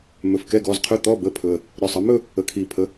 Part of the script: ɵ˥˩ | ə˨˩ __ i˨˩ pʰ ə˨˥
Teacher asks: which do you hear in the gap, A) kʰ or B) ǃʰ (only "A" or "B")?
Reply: A